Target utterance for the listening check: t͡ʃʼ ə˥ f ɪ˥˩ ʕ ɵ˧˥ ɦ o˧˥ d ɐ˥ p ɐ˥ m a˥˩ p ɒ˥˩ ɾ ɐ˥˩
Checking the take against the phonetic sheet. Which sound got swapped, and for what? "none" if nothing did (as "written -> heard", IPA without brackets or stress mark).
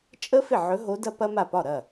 none